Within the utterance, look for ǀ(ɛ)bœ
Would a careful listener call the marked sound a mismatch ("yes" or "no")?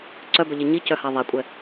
yes